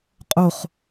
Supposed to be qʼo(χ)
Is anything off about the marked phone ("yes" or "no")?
no